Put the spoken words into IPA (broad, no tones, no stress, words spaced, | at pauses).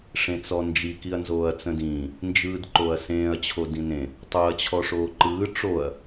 ʂẽt͡sɔnd͡ʒi kiɐ̯nzoːɐ̯t͡sə̃dĩː | nd͡ʒɯːdǃoɐ̯sẽːɐ̯ t͡ɕʰodĩnẽ | tˤoɐ̯ t͡ɕʰɔʂoːǃɯː ʈ͡ʂoɐ̯